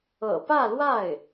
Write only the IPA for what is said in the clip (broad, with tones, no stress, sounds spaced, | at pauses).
ɤ̰˨˩ p ä˥˧ l w a˥˩ ɪ̯